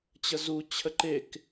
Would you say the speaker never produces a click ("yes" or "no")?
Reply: no